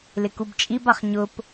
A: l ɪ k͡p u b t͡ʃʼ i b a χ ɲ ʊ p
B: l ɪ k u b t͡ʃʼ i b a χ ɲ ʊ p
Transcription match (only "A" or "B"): B